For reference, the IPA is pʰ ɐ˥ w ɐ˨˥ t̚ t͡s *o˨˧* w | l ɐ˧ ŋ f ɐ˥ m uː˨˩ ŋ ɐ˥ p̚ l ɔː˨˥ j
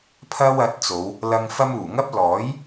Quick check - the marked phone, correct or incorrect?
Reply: correct